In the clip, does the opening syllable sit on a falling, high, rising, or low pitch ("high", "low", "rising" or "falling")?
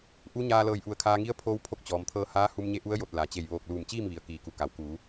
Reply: rising